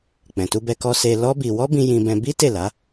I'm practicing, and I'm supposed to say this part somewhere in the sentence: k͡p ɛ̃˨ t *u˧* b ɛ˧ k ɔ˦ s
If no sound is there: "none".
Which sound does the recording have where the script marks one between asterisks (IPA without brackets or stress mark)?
u˧